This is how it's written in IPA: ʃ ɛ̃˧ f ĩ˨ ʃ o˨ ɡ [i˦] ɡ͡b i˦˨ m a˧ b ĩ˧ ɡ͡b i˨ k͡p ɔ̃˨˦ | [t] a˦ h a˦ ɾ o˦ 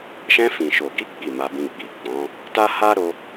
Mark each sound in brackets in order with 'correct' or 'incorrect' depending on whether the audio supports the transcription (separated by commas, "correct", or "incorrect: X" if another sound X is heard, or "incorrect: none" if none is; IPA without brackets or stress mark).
incorrect: i˨˦, correct